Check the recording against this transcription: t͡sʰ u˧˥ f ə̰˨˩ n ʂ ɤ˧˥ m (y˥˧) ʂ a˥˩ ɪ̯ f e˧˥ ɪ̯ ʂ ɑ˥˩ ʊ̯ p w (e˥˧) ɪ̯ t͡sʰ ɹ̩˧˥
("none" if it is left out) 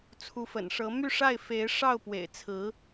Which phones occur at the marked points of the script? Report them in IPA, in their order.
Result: y˥˧, ḛ˨˩

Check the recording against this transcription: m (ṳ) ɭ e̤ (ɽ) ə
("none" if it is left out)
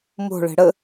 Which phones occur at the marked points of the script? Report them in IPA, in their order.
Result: o̤, ɽ

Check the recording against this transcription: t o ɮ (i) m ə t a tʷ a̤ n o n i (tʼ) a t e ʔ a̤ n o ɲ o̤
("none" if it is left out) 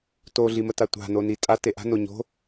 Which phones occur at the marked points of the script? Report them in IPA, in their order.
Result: i, tʼ

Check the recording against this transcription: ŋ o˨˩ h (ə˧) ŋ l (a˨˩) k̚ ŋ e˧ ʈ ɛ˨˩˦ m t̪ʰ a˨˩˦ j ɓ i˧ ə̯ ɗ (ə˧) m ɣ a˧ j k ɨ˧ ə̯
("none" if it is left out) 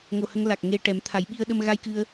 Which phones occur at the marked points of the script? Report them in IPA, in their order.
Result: ə˧, a˨˩, ə˧

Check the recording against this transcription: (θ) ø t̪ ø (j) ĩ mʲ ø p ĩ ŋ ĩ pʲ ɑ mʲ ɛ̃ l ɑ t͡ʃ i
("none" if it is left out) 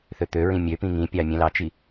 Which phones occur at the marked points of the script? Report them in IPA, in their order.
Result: θ, ɹ

